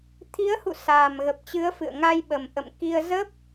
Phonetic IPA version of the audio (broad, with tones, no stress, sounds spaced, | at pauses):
t̪ʰ i˨˦ ə̯ h ṵ˧˨ s aː˨˩ m ɣ ə˨˩ p̚ t͡ɕ ɨ˨˦ ə̯ f ɨ̰˧˨ ə̯ ŋ a˧ j ɓ ə˨˩ m ʔ ə̰˧˨ m k i˧ ə̯ z ə˦˥ p̚